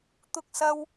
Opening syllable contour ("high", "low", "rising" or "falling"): high